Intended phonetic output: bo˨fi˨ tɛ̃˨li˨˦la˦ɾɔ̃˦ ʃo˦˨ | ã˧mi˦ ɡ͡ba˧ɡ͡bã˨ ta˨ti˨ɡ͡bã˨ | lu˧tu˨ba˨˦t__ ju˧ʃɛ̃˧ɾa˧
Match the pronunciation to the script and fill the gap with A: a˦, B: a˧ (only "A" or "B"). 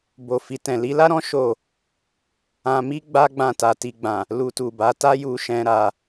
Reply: A